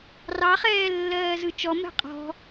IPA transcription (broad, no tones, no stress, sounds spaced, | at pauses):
r ɑ χ ɛː lː ɜː z ɯ t͡ʃ ɔ m ɛ̤ qʼ ɔ̤